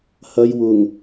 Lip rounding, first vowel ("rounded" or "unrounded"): unrounded